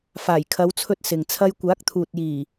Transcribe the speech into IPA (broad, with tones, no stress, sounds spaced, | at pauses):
f aː˨˩ j kʰ ɐ˨˧ w t͡sʰ ɵ˧ t̚ s ɪ˨ ŋ t͡sʰ ɐ˥ j kʷ aː˨˥ k̚ t̪ʰ uː˨ t̚ j iː˨˩